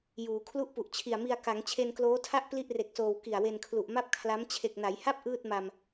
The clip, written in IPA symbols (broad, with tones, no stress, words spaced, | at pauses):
juː˩˦ kʰlu˥˩ʔpu˨˩ʔ t͡ɕʰi˨˩a̯mi˧a̯ ka˩˦ŋ t͡ɕʰe˧nkloː˦˥tʰa˥˩ʔ pli˥˩ʔre˨˩k̚soː˨˩w ki˨˩a̯we˧nkʰlu˨˩ʔ ma˥˩p̚kʰla˦˥m t͡ɕʰe˨˩k̚na˩˦jha˥˩p̚ ʔɯː˥˩t̚ma˧m